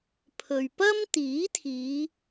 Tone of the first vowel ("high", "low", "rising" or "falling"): low